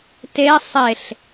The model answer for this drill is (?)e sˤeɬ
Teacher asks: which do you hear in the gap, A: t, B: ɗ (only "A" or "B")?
A